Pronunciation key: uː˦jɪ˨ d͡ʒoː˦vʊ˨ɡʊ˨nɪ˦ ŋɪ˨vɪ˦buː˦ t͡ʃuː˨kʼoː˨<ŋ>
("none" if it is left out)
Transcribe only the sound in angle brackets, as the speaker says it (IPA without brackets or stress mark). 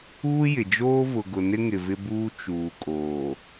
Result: none